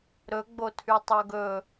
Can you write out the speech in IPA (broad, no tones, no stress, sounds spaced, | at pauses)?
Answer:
ɾ ɵ ɡ͡b o tʰ y tˤ o ɡ ɵ